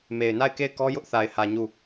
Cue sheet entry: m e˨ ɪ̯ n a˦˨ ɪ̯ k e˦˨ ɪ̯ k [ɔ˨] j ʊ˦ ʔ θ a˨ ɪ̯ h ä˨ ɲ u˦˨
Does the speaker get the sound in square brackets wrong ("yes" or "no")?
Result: yes